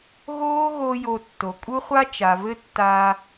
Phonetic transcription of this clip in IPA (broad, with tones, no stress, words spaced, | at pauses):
ɣoː˦ɣo˧ jo˧tːo˨ kʼu˦χʷa˦ t͡ʃa˨vɘ˦tːaː˧